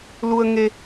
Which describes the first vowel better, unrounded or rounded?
rounded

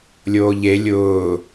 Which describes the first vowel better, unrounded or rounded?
rounded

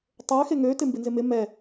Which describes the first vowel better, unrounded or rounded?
rounded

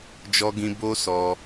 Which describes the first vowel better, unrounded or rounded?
rounded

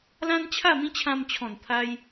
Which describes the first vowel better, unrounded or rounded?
unrounded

